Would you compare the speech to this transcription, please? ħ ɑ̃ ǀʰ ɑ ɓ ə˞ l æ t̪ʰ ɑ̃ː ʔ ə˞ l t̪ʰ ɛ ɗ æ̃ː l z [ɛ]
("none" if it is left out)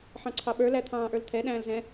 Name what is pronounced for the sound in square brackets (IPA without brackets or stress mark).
ɛ̃